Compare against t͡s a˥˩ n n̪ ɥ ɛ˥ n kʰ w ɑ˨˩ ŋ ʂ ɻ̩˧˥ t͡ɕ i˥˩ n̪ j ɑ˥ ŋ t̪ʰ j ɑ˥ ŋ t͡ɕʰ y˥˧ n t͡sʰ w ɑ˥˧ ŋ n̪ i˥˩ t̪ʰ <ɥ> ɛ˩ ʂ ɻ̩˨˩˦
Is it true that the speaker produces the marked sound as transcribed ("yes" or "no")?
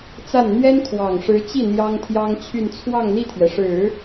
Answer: yes